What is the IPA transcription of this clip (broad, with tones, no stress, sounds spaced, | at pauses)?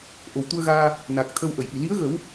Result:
ʔ o˨˩ w t̪ u˧ ə̯ ɣ aː˧ | n a˨˩ k̚ t̪ʰ ə˧ w ʔ ə˨˩˨ j ʔ i˨˩ l i˧˥ ə̯ ɣ ə˨˩˦ w